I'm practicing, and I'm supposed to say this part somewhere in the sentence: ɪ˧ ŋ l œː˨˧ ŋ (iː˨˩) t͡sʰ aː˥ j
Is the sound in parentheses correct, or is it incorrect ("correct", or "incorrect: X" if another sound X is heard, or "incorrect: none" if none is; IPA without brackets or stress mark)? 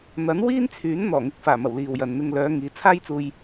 incorrect: iː˨˧